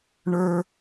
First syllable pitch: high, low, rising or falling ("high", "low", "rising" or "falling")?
high